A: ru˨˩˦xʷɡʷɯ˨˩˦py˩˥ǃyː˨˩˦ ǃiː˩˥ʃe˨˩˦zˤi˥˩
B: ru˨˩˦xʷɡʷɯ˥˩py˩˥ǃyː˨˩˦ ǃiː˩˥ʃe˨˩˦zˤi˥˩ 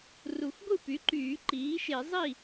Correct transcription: B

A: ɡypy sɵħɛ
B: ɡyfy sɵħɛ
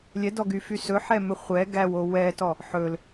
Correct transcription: B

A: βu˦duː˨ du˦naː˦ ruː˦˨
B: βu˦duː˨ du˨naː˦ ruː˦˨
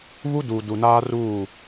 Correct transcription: B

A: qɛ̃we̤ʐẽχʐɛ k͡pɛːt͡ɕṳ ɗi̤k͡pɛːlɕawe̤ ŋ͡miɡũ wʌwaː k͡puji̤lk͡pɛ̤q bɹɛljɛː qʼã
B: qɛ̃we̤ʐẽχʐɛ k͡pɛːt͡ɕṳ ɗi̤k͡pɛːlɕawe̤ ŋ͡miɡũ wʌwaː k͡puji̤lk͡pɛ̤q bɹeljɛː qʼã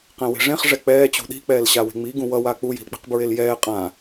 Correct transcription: B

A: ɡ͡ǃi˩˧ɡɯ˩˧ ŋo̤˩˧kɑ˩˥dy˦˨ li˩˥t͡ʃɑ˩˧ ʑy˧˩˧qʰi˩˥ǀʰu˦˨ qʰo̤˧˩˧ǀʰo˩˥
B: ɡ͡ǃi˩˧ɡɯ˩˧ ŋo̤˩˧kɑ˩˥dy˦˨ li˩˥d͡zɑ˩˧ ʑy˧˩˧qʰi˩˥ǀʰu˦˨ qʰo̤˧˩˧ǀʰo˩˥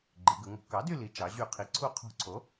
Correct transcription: A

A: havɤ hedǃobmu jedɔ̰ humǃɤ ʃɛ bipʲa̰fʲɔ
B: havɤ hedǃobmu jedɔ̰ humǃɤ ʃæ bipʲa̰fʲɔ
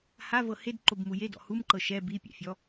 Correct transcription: A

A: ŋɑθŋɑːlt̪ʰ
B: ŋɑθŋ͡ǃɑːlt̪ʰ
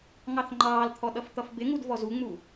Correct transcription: B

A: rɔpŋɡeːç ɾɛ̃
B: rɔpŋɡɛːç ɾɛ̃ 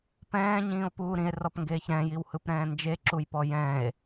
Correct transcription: A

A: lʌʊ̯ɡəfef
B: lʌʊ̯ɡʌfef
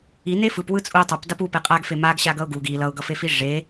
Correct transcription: B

